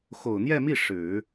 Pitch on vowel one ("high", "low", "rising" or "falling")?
low